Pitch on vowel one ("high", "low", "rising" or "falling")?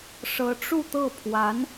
rising